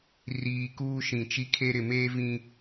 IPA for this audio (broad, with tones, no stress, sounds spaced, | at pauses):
r iː˨ k uː˦ ʃ ĩ˨ t͡ʃ i˦˨ kʰ e˦ ɾ ɪ˨ m eː˦ v ĩ˨